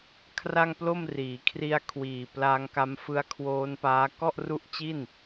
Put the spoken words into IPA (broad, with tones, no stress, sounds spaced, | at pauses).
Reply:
kʰ r a˥˩ ŋ p l o˥˩ m r iː˩˦ kʰ r i˧ a̯ kʰ w iː˨˩ p l a˧ ŋ k a˧ m f ɯ˦˥ a̯ kʰ w oː˦˥ n p aː˦˥ k ɔ˥˩ ʔ r u˦˥ ʔ t͡ɕ i˥˩ n